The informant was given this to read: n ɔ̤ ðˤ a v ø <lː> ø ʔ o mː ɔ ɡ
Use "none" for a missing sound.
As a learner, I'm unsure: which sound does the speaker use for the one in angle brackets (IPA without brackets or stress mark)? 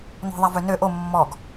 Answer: n